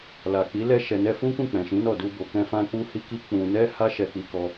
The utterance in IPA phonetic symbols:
l a˨ k͡p i˨˦ l ɛ˦˨ ʃ ɛ˨ n ɛ˧ f ũ˦ k ũ˦˨ k͡p ɛ̃˨ ʃ ĩ˨˦ n ɔ˦˨ d u˧ b o˨ k ɛ̃˧ f ã˧ k͡p u˧ h i˦ k i˦ k͡p ũ˧ n ɛ˦ h a˦ ʃ ɛ˧ k͡p i˧ k ɔ˧

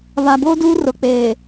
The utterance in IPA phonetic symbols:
β a˨ b oː˦ d uː˦ r ʊ˨ k͡p eː˨

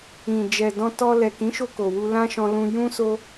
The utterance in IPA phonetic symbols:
ĩ˨ d͡ʒ ɛ˨ d ɔ̃˧ t ɔ˧ l ɛ˨ k ĩ˨˦ ʃ o˧ k o˨ w u˧ l ã˦ ʃ ɔ̃˧ l ũ˧ j ũ˦ s o˦

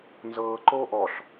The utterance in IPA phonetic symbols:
n z ɤː ǃ oː ʔ ɔ ɬ

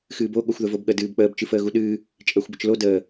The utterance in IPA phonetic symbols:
x ɨː b o ɠ o xʷ ð ə v o b ɠ ə d ɨː b k͡p əː b t͡ʃ ɨ f əː ɣ u ɗ ɨː | t͡ʃʼ əː xʷ b ə t͡ʃ l o d əː

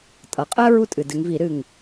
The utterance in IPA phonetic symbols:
tʼ ʌ˩ qʼ ɜ˦ ɹ u˦ tʼ ɨ˩ d ɨ˩˧ ŋ v i˧˩˧ ɾ ɨ˧˩ ŋ

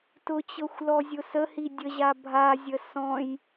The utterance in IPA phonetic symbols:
t ʊ t͡ɕ ɤ xʷ l ɔ zʲ ʊ s ə h i dʲ ə ʑ a bʱ a zʲ ə s ɔ̃ j

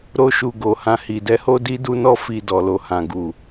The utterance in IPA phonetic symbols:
ɾ o˦ ʃ u˧ ɡ o˨ h ã˧ h i˨ d ɛ˨˦ h o˦ d i˦ d u˦ n ɔ˦ f i˧ d ɔ˨ l o˨ h ã˨ ɡ u˨

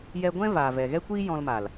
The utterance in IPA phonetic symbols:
j ɛ˧ ɡʷ ɛ̃˦ v aː˨ v ɛ˨ ɣ ɛ˦ kʷ iː˦ j ɔ̃˧ l m a˨ l

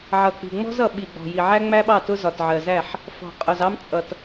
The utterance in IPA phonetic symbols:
ʕ ʌ˨ k͡p i̤˨ ŋ͡m ɔ̤˦ z ʌ˨ ɓ i˨ ɡ͡b ɔ̤˨ j i˨ ʕ æ˦ ŋ͡m æ˦ ɓ ɑ˦˨ t ʊ˦ z ɒ˨ t ʕ ɜ˨ z æ˦˨ ħ | f ɔ̤˨ qʼ ʊ˨ z ɑ˦ m t͡sʼ ʌ˨ t

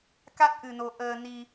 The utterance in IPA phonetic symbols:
k a˦˥ t̚ ʔ ɨ˧ n o˧ ʔ əː˧ n i˧

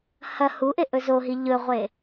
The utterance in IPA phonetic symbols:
h ɐ h u ʔ e ʔ ɵ z o ɦ i ʎ ɵ ʁʷ e

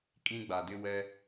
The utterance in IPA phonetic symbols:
kʼ ĩ˦ ɡ͡b a˨ d ɪ˦ w ɛ˦

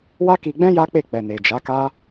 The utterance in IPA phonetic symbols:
w a˦ k i˧ ɡ͡b ɛ̃˦ j a˦ k͡p e˦˨ k͡p ɛ˨ n e˨ d͡ʒ a˨˦ k a˦

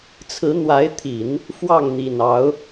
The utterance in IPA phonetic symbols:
t͡sʰ ɹ̩˧˥ n̪ w a˧˥ ɪ̯ t̪ʰ i˨˩˦ n | f w ɑ˥˩ ŋ n̪ i˨˩ n ɑ˧˥ ʊ̯

